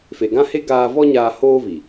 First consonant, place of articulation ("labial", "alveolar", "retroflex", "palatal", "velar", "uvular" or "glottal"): labial